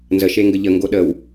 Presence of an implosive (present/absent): present